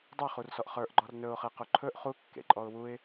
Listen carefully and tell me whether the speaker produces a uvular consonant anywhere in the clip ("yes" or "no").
yes